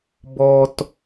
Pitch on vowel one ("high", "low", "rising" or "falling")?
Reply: low